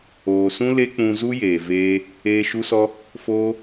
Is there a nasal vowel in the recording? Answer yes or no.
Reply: yes